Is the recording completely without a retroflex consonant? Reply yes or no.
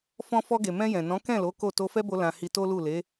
yes